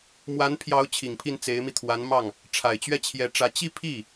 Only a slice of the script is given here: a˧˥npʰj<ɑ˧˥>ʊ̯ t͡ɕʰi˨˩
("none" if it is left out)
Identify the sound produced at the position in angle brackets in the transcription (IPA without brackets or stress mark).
ɑ˧˥